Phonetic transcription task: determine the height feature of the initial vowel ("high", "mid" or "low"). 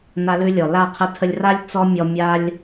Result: low